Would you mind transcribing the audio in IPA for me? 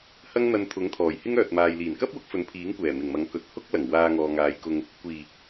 hɐ˥ŋn̪ɐ˧nt̪ʰʊ˨˥ŋt̪ʰɔː˨˩j hɪ˥ŋœː˨t̚maː˨j liː˨˩nkɐ˥p̚wʊ˨˥k̚ fɵ˨˥npʰiː˨˥ŋkʷɛː˨˩ mɪ˨˩ŋmɐ˨˥ŋkɵ˨˥t̚ hʊ˥k̚lɐ˨˩ŋ waː˧ŋɔː˨ŋaː˨˧jkʊ˧ŋ | kʷiː˨˩

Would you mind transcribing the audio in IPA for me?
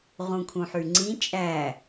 ʁũkʰũħyŋ͡ǀĩ t͡ʃʼæ

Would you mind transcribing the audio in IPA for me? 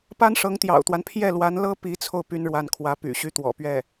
pa˥nʂɤ˧˥ŋt̪jɑ̰˨˩ʊ̯t̪wa˦n pʰjɛ˥˩lwa˧˥nlɤ˥ pi˧˥t͡sʰo˧ʊ̯ py˥nɻwa˥˩nkʰwä˧˥ py̰˨˩ɕy˥t̪wɔ̰˨˩ pɥɛ˥˩

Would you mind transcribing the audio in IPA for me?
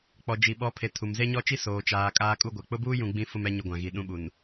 k͡pɔ˨d͡ʒi˨ɓɔ˨˦pʰe˨ tʰu˨mze˦ɲɔ˦t͡ʃi˦ soː˨t͡ʃaː˨ kʼaː˦kʼu˦ɡʷɛ˨ k͡pʊ˦buː˦jũ˨ ɡ͡bĩ˦ fʊ˦mɛ˦ ɲʊ˦ɡʷã˨ɣi˨ ɗũ˦ɓu˨n

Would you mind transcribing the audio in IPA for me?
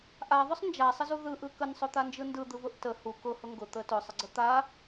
ʔaðˤʊsˤ nd͡ʒasˤəzu ðɯʔɯ kənsˤʊt̪and͡ʒɯ ndɯd̪ɯvʊʔ tə hu kʊhʊ ŋɡʊt̪ə tʊsˤəɡ͡ǀə t̪a

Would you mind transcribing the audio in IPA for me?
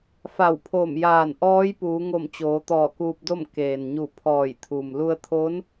fa˧˩wpʰoː˧˩mjaː˧˩n ʔɔː˧˥jpuː˩˧ŋo˧˩m t͡ɕoː˩˧t̪ɔː˧˩kuː˧p̚do˥˨m keː˩nɲu˧˩ pʰɔː˧˩jt̪ʰu˩m lu˧ə̯t̪ʰo˧˥n

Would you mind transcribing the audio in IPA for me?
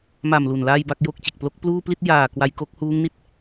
ma˨˩m lu˨˩nlaː˥˩jba˥˩k̚jo˥˩k̚ t͡ɕe˨˩k̚plo˦˥k̚pluː˥˩ pli˥˩t̚ jaː˨˩ kwa˧jko˦˥k̚huː˦˥ŋni˦˥t̚

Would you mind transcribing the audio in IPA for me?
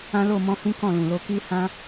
ã˦lo˦˨ mɔ̃˧hĩ˦ kɔ̃˦˨lũ˨lo˧ ki˦hã˦

